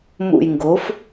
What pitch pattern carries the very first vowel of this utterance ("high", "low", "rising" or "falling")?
low